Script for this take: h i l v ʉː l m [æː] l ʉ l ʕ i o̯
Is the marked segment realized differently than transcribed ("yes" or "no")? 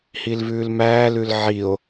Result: no